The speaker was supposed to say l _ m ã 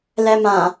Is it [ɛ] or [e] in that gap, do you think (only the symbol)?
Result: ɛ